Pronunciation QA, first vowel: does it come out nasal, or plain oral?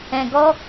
nasal